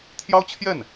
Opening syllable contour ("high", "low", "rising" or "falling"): high